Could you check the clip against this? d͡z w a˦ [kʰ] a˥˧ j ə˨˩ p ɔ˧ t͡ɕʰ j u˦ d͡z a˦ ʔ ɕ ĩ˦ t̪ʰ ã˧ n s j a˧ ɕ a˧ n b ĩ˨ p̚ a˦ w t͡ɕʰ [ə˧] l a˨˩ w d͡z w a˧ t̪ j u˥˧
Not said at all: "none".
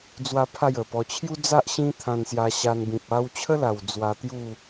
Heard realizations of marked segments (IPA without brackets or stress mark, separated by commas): pʰ, ə˦